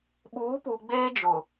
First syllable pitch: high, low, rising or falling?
rising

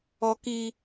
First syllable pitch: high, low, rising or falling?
high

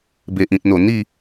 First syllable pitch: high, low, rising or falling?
low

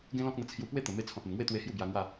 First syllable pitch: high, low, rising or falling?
high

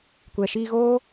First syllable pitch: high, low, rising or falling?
low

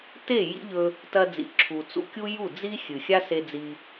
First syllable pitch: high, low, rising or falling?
falling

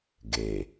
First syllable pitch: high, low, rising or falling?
low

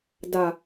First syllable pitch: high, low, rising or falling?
low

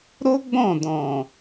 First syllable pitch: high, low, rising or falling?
high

